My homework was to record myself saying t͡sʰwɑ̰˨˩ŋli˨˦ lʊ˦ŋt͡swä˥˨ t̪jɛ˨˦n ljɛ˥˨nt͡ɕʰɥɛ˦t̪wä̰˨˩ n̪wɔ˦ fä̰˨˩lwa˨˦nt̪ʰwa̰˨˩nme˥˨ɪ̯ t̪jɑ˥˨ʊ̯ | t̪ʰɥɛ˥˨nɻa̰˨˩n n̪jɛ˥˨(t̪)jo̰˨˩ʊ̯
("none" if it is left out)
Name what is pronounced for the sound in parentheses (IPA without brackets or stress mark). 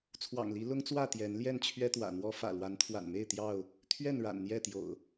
t̪